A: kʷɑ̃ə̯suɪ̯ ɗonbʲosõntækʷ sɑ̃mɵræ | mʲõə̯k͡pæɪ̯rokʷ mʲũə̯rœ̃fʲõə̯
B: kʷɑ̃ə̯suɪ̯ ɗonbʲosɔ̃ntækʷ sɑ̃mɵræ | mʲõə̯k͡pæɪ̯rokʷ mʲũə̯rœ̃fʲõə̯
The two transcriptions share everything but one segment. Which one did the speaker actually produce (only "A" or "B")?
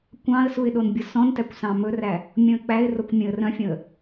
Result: B